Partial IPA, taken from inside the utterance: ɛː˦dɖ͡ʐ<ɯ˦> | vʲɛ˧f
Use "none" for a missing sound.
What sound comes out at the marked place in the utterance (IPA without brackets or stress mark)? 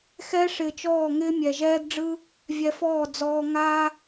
ɯ˦